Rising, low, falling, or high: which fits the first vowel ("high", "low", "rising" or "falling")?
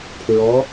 rising